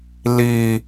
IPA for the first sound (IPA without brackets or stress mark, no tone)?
l